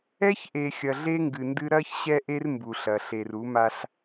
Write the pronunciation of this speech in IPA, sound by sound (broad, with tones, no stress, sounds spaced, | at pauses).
ɛ˦ ç ʔ e˨ xʲ ɐ˨ ɮ e˦ ŋ ɡ ɨ˨ n d ɨ˦ ɾ ɐ˦ ç ɕ ɛ˦ ʔ e˦ r m b u˨ ɬ ɐ˨ ɬ e˨ r u˨˦ m a˦ ɬ